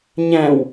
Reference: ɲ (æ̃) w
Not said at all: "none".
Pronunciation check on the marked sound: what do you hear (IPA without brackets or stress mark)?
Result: æ̃